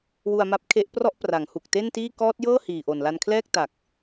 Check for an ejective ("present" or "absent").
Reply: absent